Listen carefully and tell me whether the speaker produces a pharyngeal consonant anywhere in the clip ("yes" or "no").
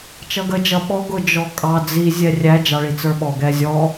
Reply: no